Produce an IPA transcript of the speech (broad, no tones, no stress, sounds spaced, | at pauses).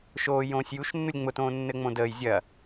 ʃ oː j õː sʲ j u ʃ nː u lʲ ŋ͡m ʊ t õː nː ɘ ŋ͡m õ d əː j zʲ ɐ